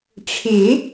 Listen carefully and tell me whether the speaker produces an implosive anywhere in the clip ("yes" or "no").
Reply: no